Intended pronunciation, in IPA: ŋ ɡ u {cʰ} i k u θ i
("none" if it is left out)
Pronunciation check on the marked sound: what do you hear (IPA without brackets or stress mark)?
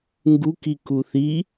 k